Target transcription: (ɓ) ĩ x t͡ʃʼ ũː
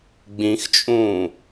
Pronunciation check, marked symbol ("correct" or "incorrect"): incorrect